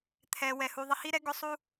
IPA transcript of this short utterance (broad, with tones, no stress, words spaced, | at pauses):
t̪ʰɛ˩wɛ˩hu˩ ðˤɪ˧hi˥ɾɛ˥ ɡʊ˥sˤu˥